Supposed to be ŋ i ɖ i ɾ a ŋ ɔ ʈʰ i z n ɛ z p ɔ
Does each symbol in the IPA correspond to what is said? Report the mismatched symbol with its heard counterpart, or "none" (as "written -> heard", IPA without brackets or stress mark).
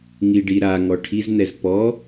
none